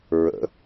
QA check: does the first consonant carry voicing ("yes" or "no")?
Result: yes